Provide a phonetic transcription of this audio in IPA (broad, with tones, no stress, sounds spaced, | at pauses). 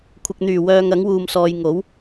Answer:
kʷʰ ɪ˨ k̚ n̪ yː˨˩ w œː˧ ŋ ɐ˨˥ ŋ w uː˧ m s ɔː˧ j ŋ o˨˥ w